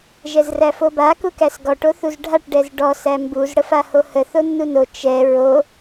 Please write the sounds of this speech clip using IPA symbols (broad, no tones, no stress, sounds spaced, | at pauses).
ʒ ɛ z r æ f o b a k u k æ s ɡ ɔ ʈ o θ u z ɖʱ a ʈ ɖ ɛ z ɖ ɔ s æ m b u z ɽ ə f a h o h ə θ o nː u n o t͡ʃ ɛ ɹ o